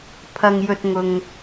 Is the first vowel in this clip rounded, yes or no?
no